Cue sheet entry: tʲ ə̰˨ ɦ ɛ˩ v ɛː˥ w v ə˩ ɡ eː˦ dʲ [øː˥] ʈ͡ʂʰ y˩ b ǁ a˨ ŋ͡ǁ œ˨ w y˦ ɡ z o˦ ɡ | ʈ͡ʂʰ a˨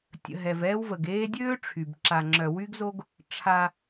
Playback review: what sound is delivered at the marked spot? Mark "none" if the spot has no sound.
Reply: øː˥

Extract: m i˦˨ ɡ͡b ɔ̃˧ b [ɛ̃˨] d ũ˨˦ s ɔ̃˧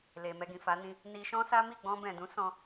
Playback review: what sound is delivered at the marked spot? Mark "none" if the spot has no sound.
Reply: ɛ̃˨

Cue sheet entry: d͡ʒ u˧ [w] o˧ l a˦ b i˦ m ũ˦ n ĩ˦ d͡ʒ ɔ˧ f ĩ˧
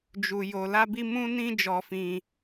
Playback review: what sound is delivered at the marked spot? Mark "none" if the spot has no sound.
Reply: j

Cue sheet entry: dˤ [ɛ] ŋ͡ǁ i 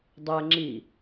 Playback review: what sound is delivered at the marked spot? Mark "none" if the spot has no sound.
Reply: ɛ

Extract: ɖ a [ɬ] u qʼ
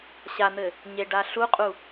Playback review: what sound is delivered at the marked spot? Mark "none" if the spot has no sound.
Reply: ɬ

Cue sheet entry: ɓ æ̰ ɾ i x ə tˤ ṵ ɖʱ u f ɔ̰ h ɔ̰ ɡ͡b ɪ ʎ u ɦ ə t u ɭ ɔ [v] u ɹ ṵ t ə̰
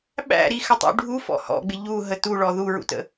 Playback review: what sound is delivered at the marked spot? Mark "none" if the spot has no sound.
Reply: ð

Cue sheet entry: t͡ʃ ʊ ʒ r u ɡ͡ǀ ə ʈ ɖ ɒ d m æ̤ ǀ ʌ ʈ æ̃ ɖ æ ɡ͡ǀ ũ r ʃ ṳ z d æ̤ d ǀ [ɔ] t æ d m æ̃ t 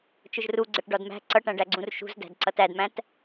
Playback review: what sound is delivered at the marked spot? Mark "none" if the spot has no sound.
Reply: ʌ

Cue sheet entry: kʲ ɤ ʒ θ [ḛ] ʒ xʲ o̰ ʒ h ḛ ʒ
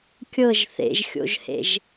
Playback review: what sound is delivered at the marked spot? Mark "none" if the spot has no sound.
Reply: ḛ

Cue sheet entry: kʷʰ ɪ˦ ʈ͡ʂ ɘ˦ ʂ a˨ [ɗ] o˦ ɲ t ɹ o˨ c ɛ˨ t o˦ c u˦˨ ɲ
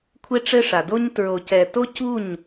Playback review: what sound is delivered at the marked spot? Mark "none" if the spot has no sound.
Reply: d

